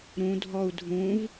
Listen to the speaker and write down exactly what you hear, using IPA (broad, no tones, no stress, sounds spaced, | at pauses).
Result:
ɾ ũ dʱ ɔ u̯ dʱ ũ v